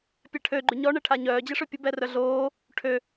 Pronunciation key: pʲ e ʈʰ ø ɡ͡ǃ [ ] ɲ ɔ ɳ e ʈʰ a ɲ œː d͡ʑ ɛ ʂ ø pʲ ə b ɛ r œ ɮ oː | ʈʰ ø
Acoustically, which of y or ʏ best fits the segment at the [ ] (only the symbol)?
y